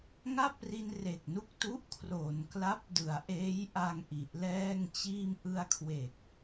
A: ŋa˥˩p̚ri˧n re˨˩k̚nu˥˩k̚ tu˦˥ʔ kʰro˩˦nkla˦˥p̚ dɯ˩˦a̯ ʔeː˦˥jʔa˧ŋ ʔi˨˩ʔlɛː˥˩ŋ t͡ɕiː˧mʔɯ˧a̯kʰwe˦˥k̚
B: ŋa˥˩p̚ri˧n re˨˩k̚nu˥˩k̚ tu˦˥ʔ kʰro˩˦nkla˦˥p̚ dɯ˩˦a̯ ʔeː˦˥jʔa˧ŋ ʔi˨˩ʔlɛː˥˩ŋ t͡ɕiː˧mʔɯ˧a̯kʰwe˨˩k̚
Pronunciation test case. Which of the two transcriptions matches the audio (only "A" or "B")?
B